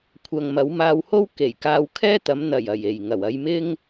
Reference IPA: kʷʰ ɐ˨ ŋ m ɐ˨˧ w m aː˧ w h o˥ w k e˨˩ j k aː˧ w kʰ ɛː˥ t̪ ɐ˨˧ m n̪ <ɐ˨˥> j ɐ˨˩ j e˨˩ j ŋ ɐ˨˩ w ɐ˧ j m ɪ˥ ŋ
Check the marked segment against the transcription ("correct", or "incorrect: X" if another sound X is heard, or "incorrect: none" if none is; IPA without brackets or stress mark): incorrect: ɐ˨˩